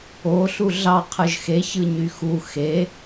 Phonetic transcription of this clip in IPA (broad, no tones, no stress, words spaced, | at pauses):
oɬu ɮɑqʰɯʒ xeçɯ ɲyxu xe